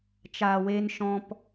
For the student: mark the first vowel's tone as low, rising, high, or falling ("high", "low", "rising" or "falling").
low